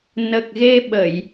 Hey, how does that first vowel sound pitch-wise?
low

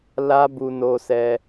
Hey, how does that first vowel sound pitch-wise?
high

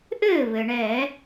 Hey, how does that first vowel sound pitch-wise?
falling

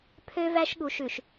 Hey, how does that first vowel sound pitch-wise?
high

